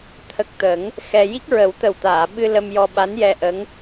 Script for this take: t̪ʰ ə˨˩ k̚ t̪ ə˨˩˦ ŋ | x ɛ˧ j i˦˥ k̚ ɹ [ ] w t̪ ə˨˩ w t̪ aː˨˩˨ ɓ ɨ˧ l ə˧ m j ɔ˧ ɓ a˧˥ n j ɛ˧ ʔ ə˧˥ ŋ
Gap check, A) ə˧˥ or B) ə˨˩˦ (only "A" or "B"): B